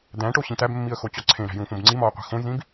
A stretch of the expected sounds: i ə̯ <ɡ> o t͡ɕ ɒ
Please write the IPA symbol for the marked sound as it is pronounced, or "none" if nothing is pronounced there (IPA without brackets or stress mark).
x